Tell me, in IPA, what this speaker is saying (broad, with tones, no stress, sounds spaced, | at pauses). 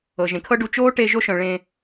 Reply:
ɤ˩ ʒ ẽ˩ kʰ ɤ˥ ɖ u˧ t͡ʃ oː˥ ʈ e˧ ʒ o˥ ʃ œ̃˩ ɭ ẽ˧